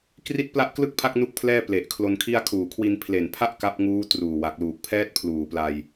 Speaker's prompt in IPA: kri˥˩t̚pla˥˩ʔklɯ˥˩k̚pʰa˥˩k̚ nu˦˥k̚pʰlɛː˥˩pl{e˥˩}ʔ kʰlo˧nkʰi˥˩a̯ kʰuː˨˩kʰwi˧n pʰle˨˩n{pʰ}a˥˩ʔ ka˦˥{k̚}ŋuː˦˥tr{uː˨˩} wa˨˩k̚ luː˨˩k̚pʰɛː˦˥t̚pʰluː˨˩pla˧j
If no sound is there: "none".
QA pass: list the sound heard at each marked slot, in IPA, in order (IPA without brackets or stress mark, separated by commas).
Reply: e˨˩, pʰ, p̚, uː˨˩